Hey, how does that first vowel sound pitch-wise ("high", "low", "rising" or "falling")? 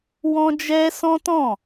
high